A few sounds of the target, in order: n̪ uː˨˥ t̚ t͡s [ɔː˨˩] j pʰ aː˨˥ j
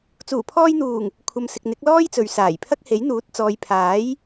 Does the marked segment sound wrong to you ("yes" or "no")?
yes